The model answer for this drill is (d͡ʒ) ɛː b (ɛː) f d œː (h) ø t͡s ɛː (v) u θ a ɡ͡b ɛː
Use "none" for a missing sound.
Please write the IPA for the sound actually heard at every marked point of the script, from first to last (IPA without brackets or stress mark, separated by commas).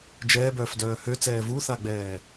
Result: d͡ʒ, œː, h, v